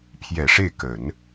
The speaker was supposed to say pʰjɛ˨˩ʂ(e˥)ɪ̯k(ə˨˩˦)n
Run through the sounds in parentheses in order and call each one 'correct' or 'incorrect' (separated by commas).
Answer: incorrect, correct